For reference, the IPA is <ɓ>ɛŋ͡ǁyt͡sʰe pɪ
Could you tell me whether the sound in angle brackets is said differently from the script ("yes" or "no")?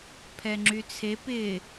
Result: yes